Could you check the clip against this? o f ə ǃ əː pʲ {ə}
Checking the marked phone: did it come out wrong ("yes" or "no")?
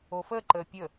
no